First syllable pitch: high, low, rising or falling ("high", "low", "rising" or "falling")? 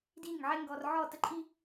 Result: falling